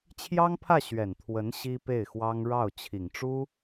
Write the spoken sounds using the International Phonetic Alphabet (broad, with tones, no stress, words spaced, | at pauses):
t͡ɕʰjɑ˥ŋpʰä˥˩ ɕɥɛ˨˩n t̪ʰwə˧˥n ɕi˥pe˥˩ɪ̯xwɑ˥ŋ ɻɑ˥˩ʊ̯ t͡ɕʰi˨˩ŋʈ͡ʂu˥